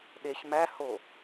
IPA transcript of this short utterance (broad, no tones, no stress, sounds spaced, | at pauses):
ɗ e ç m æ h o